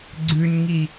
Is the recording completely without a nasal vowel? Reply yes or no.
yes